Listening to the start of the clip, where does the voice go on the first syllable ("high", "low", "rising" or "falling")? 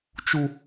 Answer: high